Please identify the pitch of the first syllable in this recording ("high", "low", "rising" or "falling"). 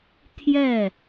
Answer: falling